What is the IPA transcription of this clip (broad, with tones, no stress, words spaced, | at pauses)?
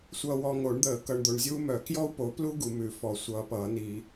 sʷʌː˨wɔ˨ŋo˨˩˦ɳd̪əː˨˩˦ kʌ˨ɳd̪o˨ɳ zʲuː˥mœ˨˩˦ kjɔ˥u̯po˨˦plu˥ ɡu˨˩˦mʉ˨˩˦fɔ˨˩˦ sʷʌː˨˦pʌː˨˩˦ni˨˩˦